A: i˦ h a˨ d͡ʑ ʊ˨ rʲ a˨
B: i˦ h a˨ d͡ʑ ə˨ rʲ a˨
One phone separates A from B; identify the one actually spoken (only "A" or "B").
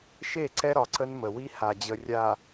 B